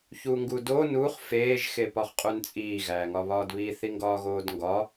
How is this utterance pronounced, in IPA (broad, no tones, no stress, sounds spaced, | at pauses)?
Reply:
ç u ŋ ɡ u d o n u χ f eː ʒ x e p ɒ χ qʼ u n t͡sʼ iː ɣ æː ŋ ɒ β ɒː d β i θ i ŋ ɡ ɒː ɣ oː d ŋ ɡ ɒ